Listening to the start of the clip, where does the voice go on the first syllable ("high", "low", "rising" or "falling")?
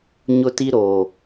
high